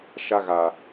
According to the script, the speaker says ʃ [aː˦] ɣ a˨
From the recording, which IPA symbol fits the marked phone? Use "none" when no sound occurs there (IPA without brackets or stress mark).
a˦